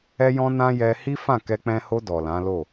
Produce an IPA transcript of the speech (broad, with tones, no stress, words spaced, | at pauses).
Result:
ɛ˦jɔ̃˦nã˦ jɛ˧hi˦fã˦˨ kɛ˧k͡pɛ̃˧ho˧ dɔ˨lã˨˦lo˦˨